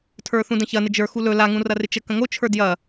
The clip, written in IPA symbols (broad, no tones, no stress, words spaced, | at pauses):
tʰə˞θũdə̃çɐ nɪd͡ʒə˞ xulɵ laŋũrɐrɪ t͡ʃə kə̃ŋot͡ʃʰə˞ djɐ